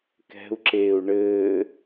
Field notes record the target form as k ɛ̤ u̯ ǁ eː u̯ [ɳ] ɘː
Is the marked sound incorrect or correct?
correct